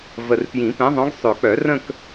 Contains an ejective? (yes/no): no